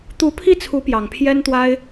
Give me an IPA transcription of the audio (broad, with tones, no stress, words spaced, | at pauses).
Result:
t̪u˧˥pʰi˥˩t͡sʰu˧˥ pjɑ˨˩ŋpʰjɛ˥nt̪wa˥ɪ̯